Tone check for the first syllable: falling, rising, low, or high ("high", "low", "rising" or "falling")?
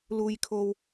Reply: low